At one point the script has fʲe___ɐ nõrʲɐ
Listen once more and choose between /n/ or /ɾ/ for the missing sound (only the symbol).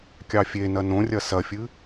n